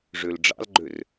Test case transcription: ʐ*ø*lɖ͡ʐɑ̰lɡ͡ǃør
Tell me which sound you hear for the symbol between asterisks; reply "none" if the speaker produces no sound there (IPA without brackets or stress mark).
ø